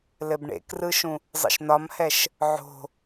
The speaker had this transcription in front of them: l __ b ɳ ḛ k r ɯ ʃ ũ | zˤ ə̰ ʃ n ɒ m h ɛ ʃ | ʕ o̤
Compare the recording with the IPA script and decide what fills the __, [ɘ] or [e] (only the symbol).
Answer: ɘ